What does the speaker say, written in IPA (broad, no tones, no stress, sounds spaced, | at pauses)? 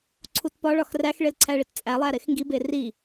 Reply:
ǀʰ u t p ɒ ɭ ɒ x r æ x ɭ e l ǀʰ æ ɭ i t t͡sʼ æ lˠ æ ɾ e x ŋ ɡ i b e r i